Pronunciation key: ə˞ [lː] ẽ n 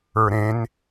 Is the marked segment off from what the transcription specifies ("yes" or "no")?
yes